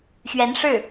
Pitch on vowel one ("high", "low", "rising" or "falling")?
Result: rising